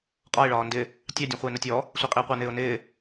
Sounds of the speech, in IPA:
qʼ ɒ ɪ̯ ɭ ɒː n d ɪ | tʲ ɑ dʲ ũ χʷ ɪː n ə tʲ ɔ | sʷ ɛ qʼ i ʊ̯ qʷ ɑ n ɪː ʊ̯ n ɪː

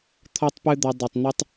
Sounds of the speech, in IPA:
t̪ʰ ɔ˦ tˤ p ɨ˦ d̪ ɔ˧ dˤ ɐ˨ tˤ n̪ ɘ˧ tˤ

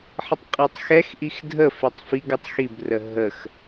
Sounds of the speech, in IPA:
ħ ə tˤ qʼ ɛ tˤ x ɛ x ʔ i x dʱ ə f e tˤ f i ɡ ə tˤ x i b r ə ɦ ə x

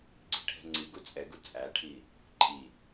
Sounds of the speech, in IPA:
ɡ͡ǀ i̤ ʈʰ ɛ̤ ŋ͡ǀ i ɡ u t͡sʼ ɛ ɡ u t͡sʼ æ ʈʰ i | ǃʼ i

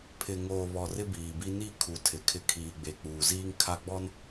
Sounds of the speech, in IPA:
pʰ ɪ˨ ŋ oː˨ β ɔ˨ r ɪ˦ b iː˨ b i˦ n i˦˨ kʰ u˨ tʰ ɪ˨ kʰ ɪ˦ kʰ iː˨ ɡ͡b e˨ k͡p uː˨ z iː˦ ŋ kʰ a˦ ɡ͡b ɔ˦ n

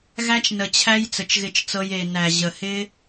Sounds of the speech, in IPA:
ɣ æ˦ t͡ʃ n ə˨ t͡ɕʰ æ˦ j t͡s ə˨ t͡ʃ ɣ ɪ˧ t͡ʃ t͡s ɤ˧ j e˨ n æ˨ ʑ ə˨ h ɪ˦

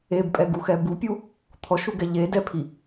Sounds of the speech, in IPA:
e b pʼ ɛ ɡ u x ɛ b u pʲ u | t̪ʰ ɔ ʃ u ɡ ɛ ʎ e d ɛ pʰ i

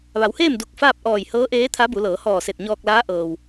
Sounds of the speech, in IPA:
ʋ a˩˧ w h eː˥˨ m d u˧˩ k̚ f aː˥˨ p̚ ʔ ɔː˧˩ j h ɤː˧˥ ʔ eː˧˥ t̪ʰ a˧˥ b u˩˧ l ɤː˩˧ h ɔː˧˩ s e˧˩ t̚ ɲ ɔː˧ k̚ l aː˧˥ ʔ ɤː˩ w

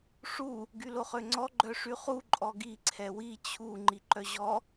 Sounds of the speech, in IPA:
ʂ u | ɡ y l o χ ø ŋ͡ǀ ɔ ɡ͡ǃ œ ʂ y χ u ǃʼ ɔ ɡ i ǀʰ ɛ w i t͡ɕʰ u ŋ͡ǃ i ǃ œ ʑ ɔ

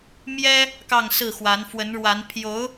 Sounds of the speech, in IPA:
m j ɛ˥ | k ɑ˥˧ ŋ s ɹ̩˥˩ x w a˧˥ n f w ə˧˥ n ɻ w a˧˥ n pʰ j o˧˥ ʊ̯

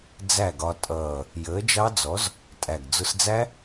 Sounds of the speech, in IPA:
d͡z æ˥˩ ɡ ɒ˧ tʼ ʌː˨˩ | j əː˨˥ d͡ʒ ɑ˦˥ d͡z ɔ˨˥ z | tʼ æ˨˩ ɡ d͡z ʊ˧ s d͡z æ˦˥

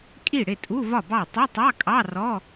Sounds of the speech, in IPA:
kʼ i˥˩ ɽ ɪ˥˩ tʼ u˧˥˧ v ɒ˥˩ b ɑ˥˩ tˤ ʊ˧˥˧ tˤ ɑ˧˥˧ kʼ ɑ˧˥˧ r ɔ˧˥˧

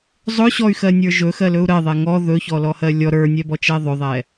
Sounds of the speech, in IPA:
zˤ ɵ ɕ ɔ y̯ x ɜ nʲ ə˞ ʒ ɵ x ɜ l ɵ u̯ ɾ ɜ ðˤ ɛ ŋ ɔ ð ɵ ç ɔ l ɔ h ɜ lʲ ɔ ɾ ə˞ nʲ ɛ b ɔ t͡ʃ ɛ ðˤ ɵ ðˤ ɛ

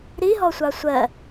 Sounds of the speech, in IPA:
ɾ i ɦ ɔ sʷ ɑ sʷ ɜ

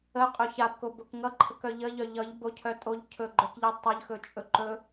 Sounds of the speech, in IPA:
ə qʼ ɵ ç a b k o b o k ŋ ʌ ǃʰ ə k œ ʎ ə ʎ œ ʎ ʌ ʎ b o cʰ œ tʼ o ʎ cʰ ɵ ɡ͡ǃ œ k ʎ i tˤ œ ʎ x ɵ t͡ʃʼ ɵ ǃ ɵ

